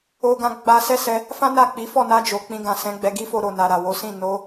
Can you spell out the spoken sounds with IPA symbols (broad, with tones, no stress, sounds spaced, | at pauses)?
o˦ ɡ ã˧ ɡ͡b a˧ s ɛ˦ s ɛ˧ | f ã˦ n a˦˨ k͡p i˨˦ f ɔ˦˨ n a˧ d͡ʒ o˨ k͡p ĩ˧ ɡ ã˨ s ɛ̃˨˦ ɡ͡b ɛ˧ ɡ i˦ f o˧ ɾ o˨ n a˨ ɾ a˨ w o˨˦ s ĩ˦˨ n o˨˦